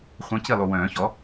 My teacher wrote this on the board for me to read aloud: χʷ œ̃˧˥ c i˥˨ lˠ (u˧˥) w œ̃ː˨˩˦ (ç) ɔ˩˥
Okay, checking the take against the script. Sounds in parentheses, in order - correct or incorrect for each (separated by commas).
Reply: incorrect, correct